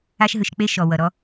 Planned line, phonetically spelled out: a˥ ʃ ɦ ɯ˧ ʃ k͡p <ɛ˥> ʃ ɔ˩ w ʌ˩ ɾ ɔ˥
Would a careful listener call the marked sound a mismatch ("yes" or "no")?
yes